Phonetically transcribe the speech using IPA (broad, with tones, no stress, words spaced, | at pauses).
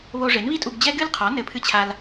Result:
βo˧ʐe˩˥nβi˥tʼu˧ɡ d͡ʑɛ˥ɡɨ˥lqʰɔ˩˥ nɘ˧pʰɨ˥t͡ɕʰa˧l